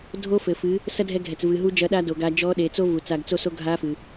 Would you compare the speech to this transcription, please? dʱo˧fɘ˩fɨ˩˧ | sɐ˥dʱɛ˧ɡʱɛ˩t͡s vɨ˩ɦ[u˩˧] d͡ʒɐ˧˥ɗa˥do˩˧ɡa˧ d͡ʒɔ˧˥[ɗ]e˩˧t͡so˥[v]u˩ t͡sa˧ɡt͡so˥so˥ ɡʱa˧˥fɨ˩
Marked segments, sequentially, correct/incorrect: incorrect, correct, correct

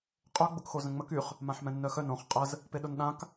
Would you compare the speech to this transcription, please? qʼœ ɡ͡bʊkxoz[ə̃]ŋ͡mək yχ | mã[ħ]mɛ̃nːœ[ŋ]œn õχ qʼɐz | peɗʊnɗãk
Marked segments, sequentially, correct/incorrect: correct, correct, incorrect

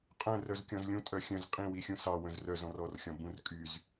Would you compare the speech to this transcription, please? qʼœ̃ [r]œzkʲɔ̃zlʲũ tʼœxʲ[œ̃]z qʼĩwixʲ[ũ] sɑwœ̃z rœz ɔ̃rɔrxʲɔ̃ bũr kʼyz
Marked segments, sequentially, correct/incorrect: correct, correct, correct

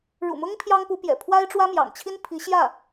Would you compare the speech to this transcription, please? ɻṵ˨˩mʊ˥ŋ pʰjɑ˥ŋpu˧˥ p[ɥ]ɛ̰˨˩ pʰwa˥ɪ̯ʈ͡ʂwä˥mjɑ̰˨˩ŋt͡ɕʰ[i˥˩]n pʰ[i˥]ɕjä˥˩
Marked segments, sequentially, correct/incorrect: incorrect, incorrect, incorrect

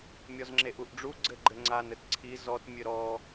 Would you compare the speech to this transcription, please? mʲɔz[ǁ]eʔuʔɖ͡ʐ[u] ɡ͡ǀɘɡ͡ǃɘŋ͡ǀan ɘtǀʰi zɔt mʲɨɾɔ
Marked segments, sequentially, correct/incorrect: incorrect, correct

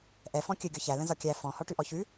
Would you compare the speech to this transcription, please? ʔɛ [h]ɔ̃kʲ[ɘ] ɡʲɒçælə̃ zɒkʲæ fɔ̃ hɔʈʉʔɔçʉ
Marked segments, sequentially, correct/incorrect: incorrect, correct

